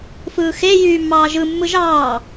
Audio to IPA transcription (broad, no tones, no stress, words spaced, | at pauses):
fɯːxe jyːmːɑːʒɯ mːɯʒɑː